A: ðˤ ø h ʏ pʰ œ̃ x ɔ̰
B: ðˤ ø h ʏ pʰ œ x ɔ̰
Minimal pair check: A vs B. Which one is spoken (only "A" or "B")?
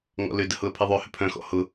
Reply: A